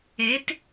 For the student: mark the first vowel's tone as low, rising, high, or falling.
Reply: rising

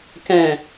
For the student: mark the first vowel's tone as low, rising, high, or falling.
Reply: low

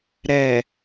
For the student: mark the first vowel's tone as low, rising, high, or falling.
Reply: low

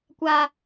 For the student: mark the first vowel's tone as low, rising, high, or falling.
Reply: high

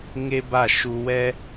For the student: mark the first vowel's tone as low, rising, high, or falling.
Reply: high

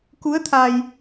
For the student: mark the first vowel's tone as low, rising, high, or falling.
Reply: rising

